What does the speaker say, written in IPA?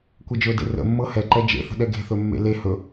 kʷ ɛ d͡ʒ ɵ d ḛ r ə̰ mː ɤ h ɛ ǃ ɛ d͡ʒ ḛ θ ə̤ ɗ ɛ ɡ e̤ θ ɵ mː ḛ l e h ɵ

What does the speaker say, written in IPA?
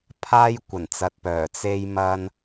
pʰ aː˧ j kʷ ɐ˨˩ n t͡s ɐ˨ t̚ p œː˨˩ t͡s e˧ j m ɐ˧ n

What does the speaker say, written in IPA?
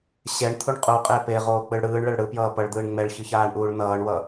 ɕ ɛ ɳ t̪ʰ u ɳ qʼ u qʼ e p e ʁ oː k͡p ɯ ɭ ɽ ɯː ɳ ɭ ɛ ɭ ɽ ɯ p j ʌː p ʌ ɭ d̪ ɯː ɳ ŋ͡m ɛ ɭ ç ɯ ç aː ɳ ʔ uː ɭ n ʌː ɳ w ʌ

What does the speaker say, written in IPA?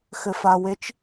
x ɘ˧ f a˧ w e˦˥ t͡ʃ

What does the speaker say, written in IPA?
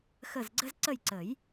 x ə˦˨ z ɡ͡ǀ ə˥ z ǀ ə˦˨ j ǀ ə˨˩˦ j

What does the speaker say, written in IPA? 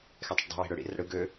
x ɛ tˤ ə̰ ʈ dˤ i̤ w i̤ ɽ ɵ ɽ ḭ r ə̰ ɽ ɯ ɡ ø

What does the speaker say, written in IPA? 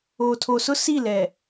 oː˨ tʰ o˨ s ʊ˦ s i˦˨ l ɛ˨

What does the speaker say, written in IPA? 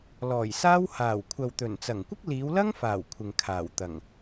l ɔː˨˩ j s aː˥ w h aː˨˩ w kʷʰ ɐ˨ w t̪ ɵ˨˩ n t͡s ɐ˨˩ ŋ kʷ ɪ˥ k̚ l iː˨˧ w l ɐ˥ ŋ f aː˨˩ w kʷʰ ɪ˨ ŋ kʰ aː˨˩ w t̪ ɐ˨˩ ŋ

